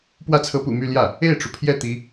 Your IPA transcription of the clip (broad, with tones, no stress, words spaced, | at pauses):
pwä˥˩t͡sʰɤ˧˥pṵ˨˩my˥˧ ljä˥˩ | e˥˩ɪ̯ʈ͡ʂu˩pʰjɛ˥˩ t̪i˧˥